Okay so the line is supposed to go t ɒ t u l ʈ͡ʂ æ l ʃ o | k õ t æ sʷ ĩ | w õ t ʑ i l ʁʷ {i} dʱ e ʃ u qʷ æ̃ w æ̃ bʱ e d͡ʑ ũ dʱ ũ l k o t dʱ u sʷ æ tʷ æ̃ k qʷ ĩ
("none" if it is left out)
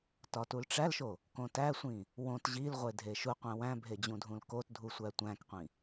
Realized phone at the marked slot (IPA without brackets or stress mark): e